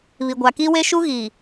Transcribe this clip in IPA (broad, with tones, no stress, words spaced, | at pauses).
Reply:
βi˨ɡʷa˨ki˦we˦ ʃu˦ɣi˨